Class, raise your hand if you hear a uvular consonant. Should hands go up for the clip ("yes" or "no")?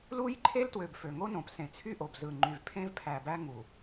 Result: no